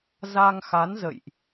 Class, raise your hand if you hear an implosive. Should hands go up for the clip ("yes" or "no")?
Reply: no